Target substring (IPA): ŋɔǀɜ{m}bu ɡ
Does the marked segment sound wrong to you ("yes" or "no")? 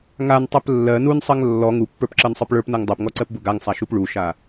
yes